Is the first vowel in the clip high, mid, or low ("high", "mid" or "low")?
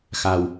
low